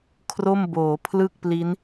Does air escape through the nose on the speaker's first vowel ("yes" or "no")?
no